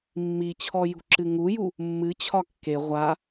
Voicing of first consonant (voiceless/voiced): voiced